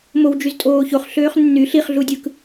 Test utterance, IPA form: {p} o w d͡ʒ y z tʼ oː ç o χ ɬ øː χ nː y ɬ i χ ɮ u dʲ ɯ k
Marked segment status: incorrect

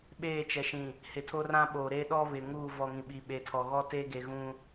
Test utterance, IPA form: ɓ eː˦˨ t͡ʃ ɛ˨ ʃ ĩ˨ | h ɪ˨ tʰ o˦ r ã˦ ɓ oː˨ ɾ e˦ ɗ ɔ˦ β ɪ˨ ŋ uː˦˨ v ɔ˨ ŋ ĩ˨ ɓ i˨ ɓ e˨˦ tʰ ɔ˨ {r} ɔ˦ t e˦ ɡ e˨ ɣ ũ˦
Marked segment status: incorrect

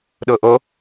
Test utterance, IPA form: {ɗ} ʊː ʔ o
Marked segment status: correct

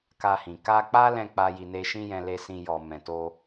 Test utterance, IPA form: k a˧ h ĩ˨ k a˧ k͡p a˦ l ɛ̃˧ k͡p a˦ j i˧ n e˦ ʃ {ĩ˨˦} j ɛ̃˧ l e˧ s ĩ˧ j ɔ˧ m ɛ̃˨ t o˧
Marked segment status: incorrect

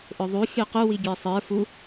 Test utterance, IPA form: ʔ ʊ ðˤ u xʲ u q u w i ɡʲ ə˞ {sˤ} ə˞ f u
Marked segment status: correct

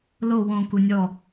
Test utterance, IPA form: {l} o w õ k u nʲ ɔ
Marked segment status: correct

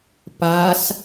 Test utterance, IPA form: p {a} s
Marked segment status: correct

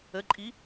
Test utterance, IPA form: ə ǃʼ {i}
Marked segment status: correct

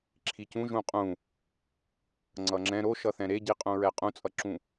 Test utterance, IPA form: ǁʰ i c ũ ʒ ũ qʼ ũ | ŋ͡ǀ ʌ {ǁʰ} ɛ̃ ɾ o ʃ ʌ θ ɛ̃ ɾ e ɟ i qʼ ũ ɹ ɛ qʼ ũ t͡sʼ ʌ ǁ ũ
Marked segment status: incorrect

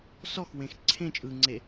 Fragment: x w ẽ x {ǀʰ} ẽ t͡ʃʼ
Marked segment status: correct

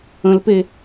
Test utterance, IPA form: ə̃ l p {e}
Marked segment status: correct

